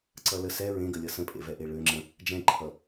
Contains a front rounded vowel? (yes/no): yes